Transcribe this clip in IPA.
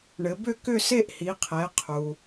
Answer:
ɳ ɘ˩˧ b ʏ˥˧ k ʏ˥˧ s e˥˧ ʔ h i˩˧ qʰ ɛ˩˧ qʰ u˩

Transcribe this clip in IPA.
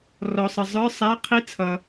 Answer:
r ɔ˨ sˤ ə˨ zˤ ə˞˧˥˧ sˤ æ˧˥˧ qʰ i˧˥˧ t͡sʰ ʌ˨

